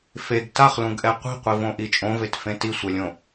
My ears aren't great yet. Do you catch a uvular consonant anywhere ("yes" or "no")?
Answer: yes